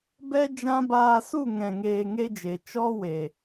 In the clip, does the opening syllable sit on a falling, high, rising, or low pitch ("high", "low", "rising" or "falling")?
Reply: high